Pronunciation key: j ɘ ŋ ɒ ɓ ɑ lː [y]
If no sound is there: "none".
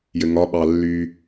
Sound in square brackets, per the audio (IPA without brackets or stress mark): y